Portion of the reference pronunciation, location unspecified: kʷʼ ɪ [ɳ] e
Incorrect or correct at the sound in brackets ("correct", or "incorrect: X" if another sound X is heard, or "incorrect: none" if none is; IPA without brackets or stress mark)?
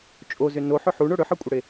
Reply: incorrect: ɽ